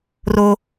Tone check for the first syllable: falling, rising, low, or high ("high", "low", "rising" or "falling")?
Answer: high